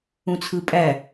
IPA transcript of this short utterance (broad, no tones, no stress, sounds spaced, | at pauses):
ũ t͡sʰ ɯ pʼ æ